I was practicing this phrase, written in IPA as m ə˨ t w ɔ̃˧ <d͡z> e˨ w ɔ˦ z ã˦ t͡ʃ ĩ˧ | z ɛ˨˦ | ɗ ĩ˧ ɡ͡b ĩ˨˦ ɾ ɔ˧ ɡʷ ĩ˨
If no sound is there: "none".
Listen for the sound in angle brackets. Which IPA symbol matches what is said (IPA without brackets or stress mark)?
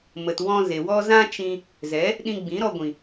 z